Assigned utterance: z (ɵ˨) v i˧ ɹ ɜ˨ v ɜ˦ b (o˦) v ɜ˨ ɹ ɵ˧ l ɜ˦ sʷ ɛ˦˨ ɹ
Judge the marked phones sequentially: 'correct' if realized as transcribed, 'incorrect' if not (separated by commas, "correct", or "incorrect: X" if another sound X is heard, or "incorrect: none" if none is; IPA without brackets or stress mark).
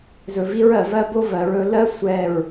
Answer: correct, correct